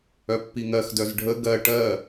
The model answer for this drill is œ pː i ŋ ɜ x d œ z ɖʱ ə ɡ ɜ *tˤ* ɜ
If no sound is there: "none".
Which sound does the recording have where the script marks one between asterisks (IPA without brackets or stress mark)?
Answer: ʈ